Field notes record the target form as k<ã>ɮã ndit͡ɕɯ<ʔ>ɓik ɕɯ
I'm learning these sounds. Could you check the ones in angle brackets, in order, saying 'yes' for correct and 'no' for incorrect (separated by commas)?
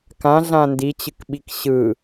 yes, no